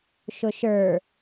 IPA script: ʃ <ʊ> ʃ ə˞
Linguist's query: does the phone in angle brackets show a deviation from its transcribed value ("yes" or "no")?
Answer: no